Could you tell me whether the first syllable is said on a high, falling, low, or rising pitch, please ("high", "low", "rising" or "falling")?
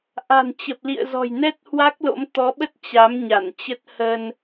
low